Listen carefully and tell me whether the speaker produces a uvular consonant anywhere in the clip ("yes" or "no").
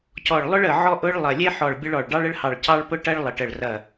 no